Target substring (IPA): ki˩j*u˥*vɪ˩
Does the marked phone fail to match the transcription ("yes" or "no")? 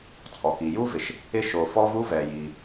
no